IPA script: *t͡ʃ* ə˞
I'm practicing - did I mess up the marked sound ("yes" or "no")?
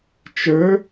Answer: no